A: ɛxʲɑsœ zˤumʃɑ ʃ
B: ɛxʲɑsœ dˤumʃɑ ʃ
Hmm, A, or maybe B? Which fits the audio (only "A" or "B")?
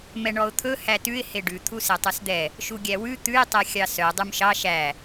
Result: B